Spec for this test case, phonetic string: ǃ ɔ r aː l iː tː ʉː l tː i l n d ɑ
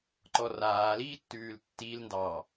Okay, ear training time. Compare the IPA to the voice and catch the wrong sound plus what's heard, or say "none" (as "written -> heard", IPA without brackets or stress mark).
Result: none